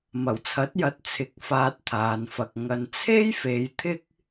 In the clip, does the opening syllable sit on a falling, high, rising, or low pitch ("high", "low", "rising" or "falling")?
low